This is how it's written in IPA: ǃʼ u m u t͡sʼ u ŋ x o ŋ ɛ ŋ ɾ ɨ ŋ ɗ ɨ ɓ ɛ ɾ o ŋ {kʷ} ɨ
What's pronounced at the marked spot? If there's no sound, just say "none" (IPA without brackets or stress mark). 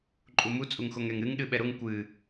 kʷ